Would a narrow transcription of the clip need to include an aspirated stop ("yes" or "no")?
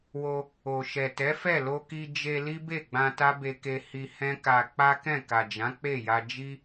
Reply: no